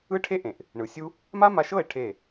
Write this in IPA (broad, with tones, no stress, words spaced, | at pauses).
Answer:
ɯ˦ʈʰe˦ʔẽ˨ʔ | ɳɯ˨sʲu˦ | ma˦ma˧ʃɤ˦˨e̯ ʈʰe˦˨